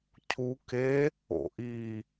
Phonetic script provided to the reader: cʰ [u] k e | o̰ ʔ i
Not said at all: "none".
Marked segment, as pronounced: u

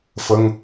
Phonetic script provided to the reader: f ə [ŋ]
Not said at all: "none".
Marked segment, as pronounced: ŋ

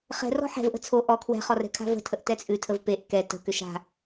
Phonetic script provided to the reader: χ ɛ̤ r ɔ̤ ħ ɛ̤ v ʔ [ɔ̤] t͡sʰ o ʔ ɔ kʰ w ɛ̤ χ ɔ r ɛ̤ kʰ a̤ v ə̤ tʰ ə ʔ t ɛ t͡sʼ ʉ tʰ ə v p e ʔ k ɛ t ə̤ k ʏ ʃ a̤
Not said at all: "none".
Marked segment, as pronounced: ə̤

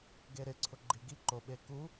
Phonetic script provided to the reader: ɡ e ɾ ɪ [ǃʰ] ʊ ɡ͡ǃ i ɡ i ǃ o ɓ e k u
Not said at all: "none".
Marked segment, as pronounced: ǀʰ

